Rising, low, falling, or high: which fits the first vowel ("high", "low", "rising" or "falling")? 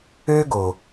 high